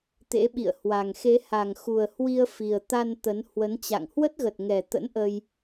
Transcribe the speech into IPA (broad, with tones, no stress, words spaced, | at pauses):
t̪ḛ˧˥ɓḭ˧˨ə̯hwa˨˩ŋ xe˨˦ha˨˩ŋxu˨˩ə̯hwi˧ə̯ fi˨˩ə̯t̪a˧n t̪ə˨˦nhwə˨˦nt͡ɕa̰˧˨ŋ hwə˦˥t̚ɣə˨˩t̚ŋɛ˨˩t̪ə̰˧˥n ʔə˧j